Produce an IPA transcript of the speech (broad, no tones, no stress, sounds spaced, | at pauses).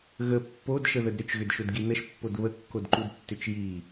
ɣ ə pː o d ʃ ə ð ə d ɾ ʏ t͡ʃ ɣ ʏ d ʃ ʊ d ɡ i n ə ʃ pː o d β ə kː o d ǃ u d tː ʏ t͡ʃ j i